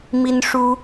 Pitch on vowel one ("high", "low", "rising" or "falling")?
high